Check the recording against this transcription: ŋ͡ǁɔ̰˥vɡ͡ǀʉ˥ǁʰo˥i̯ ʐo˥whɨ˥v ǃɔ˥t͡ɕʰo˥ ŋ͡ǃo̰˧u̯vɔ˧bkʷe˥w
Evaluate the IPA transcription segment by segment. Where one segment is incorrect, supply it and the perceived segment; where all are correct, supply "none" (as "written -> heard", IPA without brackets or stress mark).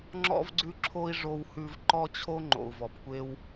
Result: ɨ˥ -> ʉ˥